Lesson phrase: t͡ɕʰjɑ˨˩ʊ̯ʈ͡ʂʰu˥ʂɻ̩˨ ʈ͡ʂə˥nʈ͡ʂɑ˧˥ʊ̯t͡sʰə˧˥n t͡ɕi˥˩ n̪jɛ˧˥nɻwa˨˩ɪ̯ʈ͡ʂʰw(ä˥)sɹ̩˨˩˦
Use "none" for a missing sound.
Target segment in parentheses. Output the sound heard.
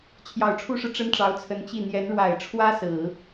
ä˥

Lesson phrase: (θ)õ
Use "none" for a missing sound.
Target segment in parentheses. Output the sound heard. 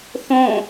θ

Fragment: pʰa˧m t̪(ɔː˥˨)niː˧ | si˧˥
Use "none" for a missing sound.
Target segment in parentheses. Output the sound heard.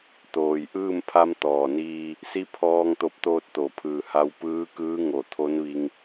ɔː˩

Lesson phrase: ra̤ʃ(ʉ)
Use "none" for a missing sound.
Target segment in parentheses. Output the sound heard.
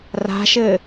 ɘ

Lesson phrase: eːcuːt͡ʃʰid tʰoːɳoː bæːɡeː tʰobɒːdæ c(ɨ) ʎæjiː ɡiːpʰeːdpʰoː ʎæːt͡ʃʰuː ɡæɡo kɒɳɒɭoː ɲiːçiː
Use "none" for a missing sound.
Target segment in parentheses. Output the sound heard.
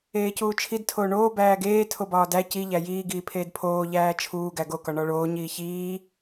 i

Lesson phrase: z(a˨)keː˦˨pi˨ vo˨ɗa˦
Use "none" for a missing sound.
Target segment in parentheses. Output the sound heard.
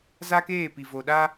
a˦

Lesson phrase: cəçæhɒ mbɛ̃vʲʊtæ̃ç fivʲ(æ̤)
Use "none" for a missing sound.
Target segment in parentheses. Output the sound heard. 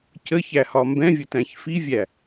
æ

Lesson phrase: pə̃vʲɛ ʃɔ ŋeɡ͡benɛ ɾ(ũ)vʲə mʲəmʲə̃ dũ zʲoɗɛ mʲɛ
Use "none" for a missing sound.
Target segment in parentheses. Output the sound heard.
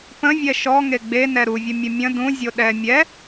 u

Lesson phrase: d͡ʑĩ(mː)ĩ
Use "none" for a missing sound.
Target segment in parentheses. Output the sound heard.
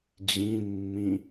mː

